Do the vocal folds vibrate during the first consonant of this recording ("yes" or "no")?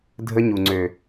yes